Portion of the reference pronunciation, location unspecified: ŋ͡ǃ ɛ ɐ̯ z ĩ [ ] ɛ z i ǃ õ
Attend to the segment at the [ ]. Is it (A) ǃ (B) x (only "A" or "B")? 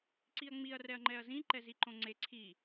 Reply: A